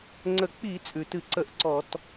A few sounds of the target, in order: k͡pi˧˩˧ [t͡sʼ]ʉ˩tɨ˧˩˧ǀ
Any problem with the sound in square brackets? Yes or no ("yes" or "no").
no